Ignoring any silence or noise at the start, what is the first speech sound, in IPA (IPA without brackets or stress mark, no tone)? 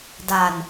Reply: d